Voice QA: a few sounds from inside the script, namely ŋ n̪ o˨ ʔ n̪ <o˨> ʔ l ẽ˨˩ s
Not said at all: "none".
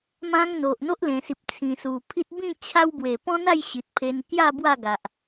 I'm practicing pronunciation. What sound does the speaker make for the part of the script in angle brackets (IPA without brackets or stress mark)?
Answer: o˦